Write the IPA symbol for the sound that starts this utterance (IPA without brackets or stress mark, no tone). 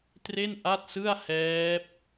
t